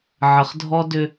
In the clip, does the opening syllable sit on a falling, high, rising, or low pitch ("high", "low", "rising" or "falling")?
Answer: low